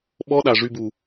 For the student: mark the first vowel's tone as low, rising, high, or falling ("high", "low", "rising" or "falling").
high